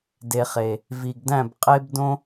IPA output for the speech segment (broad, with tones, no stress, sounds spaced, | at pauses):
d e˨ χ e˨ | v i˨ ɡ d æ̃˦˨ b qʼ e˦ b d õ˦